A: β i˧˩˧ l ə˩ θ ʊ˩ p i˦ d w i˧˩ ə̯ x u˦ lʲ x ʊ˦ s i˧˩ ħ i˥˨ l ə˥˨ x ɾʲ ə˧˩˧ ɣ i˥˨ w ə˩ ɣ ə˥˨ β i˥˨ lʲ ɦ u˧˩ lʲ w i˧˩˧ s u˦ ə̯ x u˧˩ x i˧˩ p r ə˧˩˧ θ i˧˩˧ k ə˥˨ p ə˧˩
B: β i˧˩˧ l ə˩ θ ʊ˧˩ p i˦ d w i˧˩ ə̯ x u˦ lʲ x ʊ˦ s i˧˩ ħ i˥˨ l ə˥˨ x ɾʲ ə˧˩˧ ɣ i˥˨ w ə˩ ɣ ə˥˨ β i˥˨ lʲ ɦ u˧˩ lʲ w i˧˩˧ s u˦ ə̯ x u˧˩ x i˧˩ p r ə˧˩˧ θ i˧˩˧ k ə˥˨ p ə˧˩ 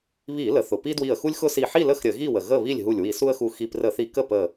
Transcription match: A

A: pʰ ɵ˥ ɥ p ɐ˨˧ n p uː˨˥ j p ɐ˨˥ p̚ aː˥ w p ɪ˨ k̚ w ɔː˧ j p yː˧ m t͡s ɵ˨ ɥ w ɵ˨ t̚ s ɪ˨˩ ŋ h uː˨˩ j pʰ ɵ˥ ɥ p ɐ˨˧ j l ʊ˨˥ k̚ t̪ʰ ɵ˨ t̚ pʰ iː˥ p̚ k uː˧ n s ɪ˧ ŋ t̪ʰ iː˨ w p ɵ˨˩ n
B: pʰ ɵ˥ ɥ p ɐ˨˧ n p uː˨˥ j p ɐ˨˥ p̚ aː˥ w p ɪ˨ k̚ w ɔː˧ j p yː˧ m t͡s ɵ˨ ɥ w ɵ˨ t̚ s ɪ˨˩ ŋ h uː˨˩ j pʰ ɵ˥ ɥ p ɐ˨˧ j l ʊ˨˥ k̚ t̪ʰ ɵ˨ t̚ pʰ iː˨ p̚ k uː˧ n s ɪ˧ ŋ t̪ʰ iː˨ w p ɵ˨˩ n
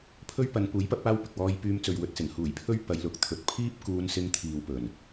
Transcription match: A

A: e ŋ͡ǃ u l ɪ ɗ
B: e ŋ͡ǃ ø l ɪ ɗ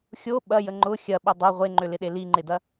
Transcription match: B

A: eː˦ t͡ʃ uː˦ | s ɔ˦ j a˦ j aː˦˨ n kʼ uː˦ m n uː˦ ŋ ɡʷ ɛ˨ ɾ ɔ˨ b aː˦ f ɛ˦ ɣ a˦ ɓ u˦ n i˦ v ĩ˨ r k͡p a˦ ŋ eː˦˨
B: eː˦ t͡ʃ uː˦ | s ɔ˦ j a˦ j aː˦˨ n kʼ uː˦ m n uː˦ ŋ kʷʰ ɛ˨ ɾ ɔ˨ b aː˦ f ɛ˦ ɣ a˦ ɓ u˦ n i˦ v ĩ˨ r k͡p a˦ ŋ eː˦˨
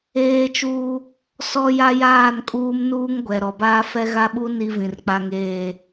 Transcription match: A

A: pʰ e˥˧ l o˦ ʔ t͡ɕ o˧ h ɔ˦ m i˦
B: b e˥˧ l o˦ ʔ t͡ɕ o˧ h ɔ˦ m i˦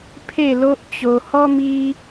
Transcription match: A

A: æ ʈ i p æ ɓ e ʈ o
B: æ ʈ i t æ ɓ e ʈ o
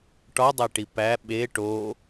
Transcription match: A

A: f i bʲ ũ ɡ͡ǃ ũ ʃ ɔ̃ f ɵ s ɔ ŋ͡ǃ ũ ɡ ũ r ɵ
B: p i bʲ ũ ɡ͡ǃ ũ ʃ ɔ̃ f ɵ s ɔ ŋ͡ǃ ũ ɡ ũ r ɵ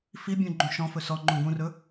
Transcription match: A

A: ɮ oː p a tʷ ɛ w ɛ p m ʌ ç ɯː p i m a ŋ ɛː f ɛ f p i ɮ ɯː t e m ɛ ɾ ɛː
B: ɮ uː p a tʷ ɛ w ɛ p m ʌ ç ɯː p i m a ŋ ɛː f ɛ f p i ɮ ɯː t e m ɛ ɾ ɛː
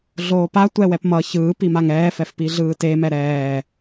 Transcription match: A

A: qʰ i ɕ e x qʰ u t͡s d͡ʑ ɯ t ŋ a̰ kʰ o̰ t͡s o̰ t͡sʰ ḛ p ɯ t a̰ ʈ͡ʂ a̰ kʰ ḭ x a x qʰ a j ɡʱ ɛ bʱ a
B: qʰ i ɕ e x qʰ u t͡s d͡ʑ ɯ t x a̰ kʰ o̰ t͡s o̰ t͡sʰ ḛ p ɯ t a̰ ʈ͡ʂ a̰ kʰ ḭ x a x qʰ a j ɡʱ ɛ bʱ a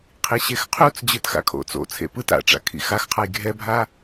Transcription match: B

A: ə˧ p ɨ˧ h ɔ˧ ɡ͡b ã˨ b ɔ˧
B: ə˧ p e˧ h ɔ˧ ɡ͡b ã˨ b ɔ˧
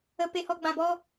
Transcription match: B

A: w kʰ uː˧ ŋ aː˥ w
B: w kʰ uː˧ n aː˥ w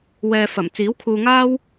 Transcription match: A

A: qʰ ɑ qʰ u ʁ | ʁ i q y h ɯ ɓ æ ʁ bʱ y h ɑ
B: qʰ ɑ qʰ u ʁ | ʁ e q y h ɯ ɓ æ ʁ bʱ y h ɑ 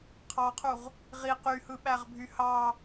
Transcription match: A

